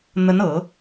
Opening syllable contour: rising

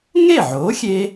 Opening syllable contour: falling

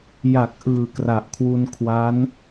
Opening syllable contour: low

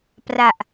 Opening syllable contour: low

